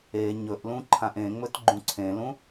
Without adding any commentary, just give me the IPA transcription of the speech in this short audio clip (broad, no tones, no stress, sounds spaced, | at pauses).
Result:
e ɲ ɵ ʔ l ũ ǃʰ ã ʔ ẽ ŋ͡m ɵ t ɡ͡ǃ ũ ǀʰ ẽ l ũ